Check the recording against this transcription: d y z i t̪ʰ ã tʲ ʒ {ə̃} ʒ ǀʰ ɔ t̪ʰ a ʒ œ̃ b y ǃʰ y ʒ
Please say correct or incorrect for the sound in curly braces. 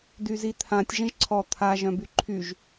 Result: correct